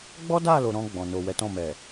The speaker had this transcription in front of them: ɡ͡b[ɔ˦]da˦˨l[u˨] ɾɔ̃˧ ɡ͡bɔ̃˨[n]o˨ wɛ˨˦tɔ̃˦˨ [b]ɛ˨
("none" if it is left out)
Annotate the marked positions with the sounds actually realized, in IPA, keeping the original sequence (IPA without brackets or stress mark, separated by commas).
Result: ɔ˦, o˨, n, m